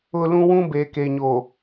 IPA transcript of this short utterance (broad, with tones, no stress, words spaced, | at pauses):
ʊ˦ lũ˦wũ˦ be˨ke˨ɲo˨